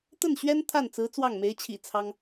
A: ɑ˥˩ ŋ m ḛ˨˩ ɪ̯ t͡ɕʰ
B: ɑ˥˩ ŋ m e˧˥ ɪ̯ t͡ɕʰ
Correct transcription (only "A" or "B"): B